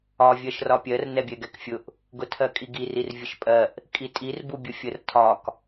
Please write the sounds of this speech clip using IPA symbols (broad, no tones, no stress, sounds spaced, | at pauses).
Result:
ɒ vʲ ɜ ʃ r ɒ pʲ ɜ r n ɛ bʲ ɛ ɡ ɛ k fʲ ʊ ʔ | ɡ ʊ tʰ ɜ kʼ i ɡ i r i r vʲ ə ʃ pʼ ɜ ʔ | kʼ i tʼ i r b u bʲ ʊ fʲ ə r tʰ ɒ k